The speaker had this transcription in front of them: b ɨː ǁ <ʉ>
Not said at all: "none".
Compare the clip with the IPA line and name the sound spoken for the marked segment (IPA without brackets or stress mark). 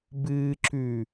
ʉ